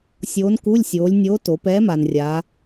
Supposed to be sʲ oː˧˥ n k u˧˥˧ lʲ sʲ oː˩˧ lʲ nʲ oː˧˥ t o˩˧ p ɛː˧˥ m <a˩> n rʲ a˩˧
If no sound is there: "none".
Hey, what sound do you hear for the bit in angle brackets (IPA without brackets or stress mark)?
a˩